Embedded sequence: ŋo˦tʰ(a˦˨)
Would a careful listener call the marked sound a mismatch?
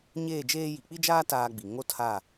no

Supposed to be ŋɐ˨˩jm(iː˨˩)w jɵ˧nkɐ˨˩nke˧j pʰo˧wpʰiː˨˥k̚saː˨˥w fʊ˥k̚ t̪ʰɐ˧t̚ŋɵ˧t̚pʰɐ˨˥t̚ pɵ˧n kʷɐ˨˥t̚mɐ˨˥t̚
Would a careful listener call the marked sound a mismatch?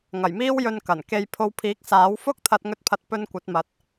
yes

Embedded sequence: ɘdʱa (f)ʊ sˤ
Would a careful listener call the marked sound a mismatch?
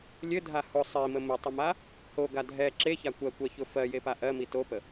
yes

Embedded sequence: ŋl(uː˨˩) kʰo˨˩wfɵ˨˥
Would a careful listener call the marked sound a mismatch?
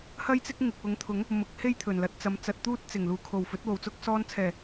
no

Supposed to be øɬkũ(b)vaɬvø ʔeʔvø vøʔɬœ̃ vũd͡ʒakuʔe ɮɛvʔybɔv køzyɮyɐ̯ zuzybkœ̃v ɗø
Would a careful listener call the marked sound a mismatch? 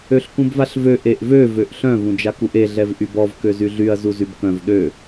no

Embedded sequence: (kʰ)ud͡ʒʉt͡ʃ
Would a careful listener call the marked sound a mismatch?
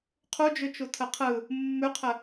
yes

